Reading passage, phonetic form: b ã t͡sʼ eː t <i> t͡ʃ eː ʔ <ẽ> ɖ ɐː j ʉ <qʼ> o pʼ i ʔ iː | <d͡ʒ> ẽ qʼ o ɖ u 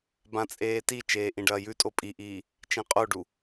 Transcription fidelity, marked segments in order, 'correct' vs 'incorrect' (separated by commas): correct, incorrect, incorrect, incorrect